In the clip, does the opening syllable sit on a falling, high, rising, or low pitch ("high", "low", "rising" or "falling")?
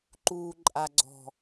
low